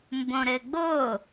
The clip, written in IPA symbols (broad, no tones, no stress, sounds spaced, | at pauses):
m b õ ɾ ɘ ɡ͡b o